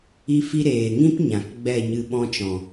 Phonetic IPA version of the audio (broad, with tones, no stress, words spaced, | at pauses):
i˦fi˦ ɾeː˨ŋĩ˦p ɲã˨kɡ͡bɛ˦˨ɲɨ˧ ɓɔ̃˧t͡ʃɔ̃˨